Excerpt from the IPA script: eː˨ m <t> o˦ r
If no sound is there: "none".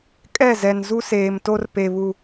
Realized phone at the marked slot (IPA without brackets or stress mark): t